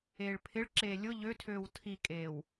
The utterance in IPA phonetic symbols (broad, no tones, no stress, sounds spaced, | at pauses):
eː ɭ pʰ ɪ ɭ ǁ eː lʲ ʊ ʎ ø tʰ øː w tʰ i kʼ eː w